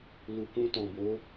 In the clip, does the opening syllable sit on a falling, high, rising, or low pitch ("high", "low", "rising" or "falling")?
low